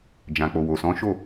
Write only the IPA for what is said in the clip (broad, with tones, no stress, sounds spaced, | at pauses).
d͡ʒ ã˨ k͡p o˨ w o˨ s ɔ̃˨˦ ʃ o˦˨